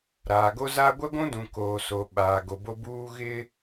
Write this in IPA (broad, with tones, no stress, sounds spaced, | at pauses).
ɾ aː˨ ɡ o˦ z a˦ ɡʷ ɛ˦ ɡʷ ũ˦ d ũ˨ k oː˨ s o˨ ɓ aː˨ ɡ o˨ b o˦ b uː˦ ɣ ɪ˦